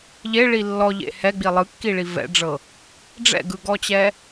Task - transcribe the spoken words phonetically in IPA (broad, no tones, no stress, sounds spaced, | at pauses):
ʎ e ɭ i lː ɔ ʎ ḛ h ɛ ɡ͡b i lˠ ɯ kː i ɭ i v ɛ̰ ɖ͡ʐ ɤ | ɖ͡ʐ ɛ̰ ɡ ɯ ɡ ɔ t͡ɕ ɛ